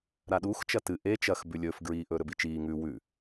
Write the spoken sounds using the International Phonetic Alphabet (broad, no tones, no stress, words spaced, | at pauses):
ɾaɗuːx t͡ʃɐtɨ ʔe t͡ʃɐx bʉlʲɵːf ɡɹiːʔɵːɾɵbi t͡ʃiː ŋʉ wʉ